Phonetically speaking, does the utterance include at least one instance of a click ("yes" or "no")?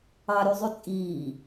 no